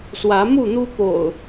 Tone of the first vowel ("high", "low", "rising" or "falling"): rising